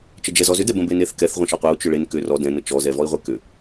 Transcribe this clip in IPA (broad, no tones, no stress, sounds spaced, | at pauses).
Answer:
t͡ʃ ə d͡ʒ ɛ z ɔ z ʏ d ɛ b ə̃ b e n e θ k ɛ θ ʁʷ ə̃ ʃ ɔ qʷ ɛ u̯ t͡ʃ ʏ ɭ e n k ʏ r ɔ d ɛ̃ n ə t͡ʃ ɔ z ɛ v ɔ i̯ ʁʷ ɛ k ʏ